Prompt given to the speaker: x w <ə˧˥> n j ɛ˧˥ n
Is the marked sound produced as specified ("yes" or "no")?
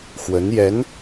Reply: yes